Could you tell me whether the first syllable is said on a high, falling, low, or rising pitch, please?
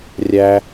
high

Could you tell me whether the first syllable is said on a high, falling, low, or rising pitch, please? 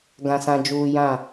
low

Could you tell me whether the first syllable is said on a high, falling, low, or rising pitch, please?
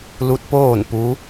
rising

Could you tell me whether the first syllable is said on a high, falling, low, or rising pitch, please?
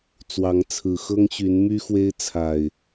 rising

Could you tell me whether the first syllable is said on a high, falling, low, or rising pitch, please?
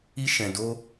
high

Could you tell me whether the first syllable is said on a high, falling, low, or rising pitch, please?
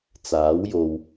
rising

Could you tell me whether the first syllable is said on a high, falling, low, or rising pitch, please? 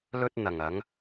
high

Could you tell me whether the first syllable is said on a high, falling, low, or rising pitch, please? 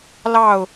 falling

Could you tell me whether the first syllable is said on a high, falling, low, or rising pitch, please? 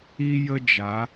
high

